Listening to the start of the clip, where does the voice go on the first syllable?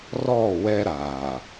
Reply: falling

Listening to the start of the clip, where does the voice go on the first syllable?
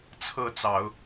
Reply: rising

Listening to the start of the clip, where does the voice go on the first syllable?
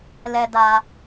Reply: low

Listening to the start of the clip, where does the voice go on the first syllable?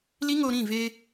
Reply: high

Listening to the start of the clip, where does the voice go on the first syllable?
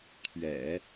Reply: low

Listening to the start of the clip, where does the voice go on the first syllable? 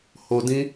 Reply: low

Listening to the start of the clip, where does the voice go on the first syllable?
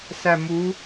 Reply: low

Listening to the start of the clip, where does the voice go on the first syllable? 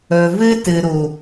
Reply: low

